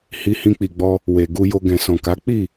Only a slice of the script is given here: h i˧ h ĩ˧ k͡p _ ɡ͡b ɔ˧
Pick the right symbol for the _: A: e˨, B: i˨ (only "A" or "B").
B